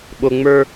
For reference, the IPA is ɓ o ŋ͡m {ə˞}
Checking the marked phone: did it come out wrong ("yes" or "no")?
no